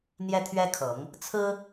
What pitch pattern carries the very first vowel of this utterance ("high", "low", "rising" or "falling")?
high